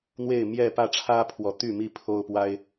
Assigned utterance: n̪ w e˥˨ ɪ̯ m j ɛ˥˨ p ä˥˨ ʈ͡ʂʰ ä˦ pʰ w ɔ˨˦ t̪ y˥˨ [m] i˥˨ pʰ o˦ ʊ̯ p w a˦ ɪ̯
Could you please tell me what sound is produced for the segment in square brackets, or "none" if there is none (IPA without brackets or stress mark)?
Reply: m